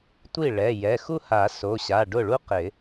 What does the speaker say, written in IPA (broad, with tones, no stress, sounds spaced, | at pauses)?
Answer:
tʷ i˥˩ ɭ ɛ˩˧˩ j ɛ˩˧˩ x u˥ h a˨˩˦ s o˩˧˩ ɕ a˩˧˩ ɖ ʊ˥˩ ɭ u˥ q ɪ˨˩˦